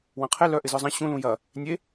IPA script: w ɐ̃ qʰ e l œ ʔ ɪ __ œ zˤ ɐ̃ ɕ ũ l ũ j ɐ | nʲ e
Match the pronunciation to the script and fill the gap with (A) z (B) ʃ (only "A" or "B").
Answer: A